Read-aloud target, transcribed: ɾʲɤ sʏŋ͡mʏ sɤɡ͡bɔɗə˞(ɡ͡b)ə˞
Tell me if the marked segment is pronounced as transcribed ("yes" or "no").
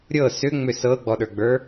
yes